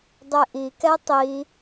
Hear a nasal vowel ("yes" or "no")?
no